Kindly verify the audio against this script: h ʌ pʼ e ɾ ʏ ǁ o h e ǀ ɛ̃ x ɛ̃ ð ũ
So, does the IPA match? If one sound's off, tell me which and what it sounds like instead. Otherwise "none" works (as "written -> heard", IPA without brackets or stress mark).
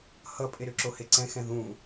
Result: none